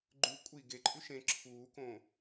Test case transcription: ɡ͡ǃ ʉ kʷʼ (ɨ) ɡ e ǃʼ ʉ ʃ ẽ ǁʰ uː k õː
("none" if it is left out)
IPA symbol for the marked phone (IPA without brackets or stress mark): i